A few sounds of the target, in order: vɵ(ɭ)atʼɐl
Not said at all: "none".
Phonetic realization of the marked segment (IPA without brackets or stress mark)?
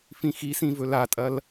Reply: l